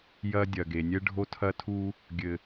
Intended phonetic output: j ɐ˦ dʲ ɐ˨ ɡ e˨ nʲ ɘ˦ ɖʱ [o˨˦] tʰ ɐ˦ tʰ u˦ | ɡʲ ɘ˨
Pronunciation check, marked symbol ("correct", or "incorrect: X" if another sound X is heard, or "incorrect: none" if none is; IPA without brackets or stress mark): incorrect: o˦